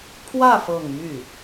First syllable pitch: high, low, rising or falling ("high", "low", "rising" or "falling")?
falling